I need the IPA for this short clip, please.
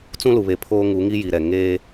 t͡s ũ˦ l u˨ β e˨ pʰ oː˦ ŋ u˨˦ ŋ i˦ j i˨ ɾ ɛ˨ ŋ eː˦

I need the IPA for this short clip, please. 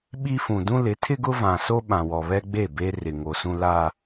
ɓ i˦ f ũ˨ d ũ˦ l ɪ˨˦ tʰ ɪ˦ ɡ ʊ˦ v ã˨ s o˦ ɓ ã˨ w ɔ˨ β ɛ˦ ɡ͡b e˦˨ b e˦ r ɪ˨ ŋ o˨ s ũ˦ l a˦

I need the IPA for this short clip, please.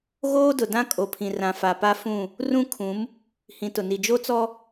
ɣ oː˦ d ʊ˨ d ã˦ kʼ o˨ pʰ ĩ˨ r ã˨ f a˨ p a˦ f ũ˦˨ | r ũ˦ kʰ ũ˨˦ m | h ĩ˨ t ʊ˨ n i˨ d͡ʒ o˦ t͡s ɔ˦

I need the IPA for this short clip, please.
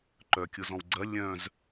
ǃ œ kʲ ʊ z ɔ̃ w ɡ͡ǀ ɐ lʲ œ̃ z

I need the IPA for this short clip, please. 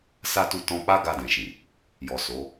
s a˦ t u˦˨ t ɔ̃˧ k͡p a˦ ɡ a˧ d ɛ̃˨ ʃ ĩ˨ | j ɔ˨ s o˨˦

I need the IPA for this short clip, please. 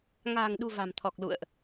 ŋ a̤ː˨˩ ŋ ɗ ṳ˨˩ v a̤˨˩ m t̪ʰ ɔ˨˩ k̚ l ṵ˧˨ ə̯ ʔ

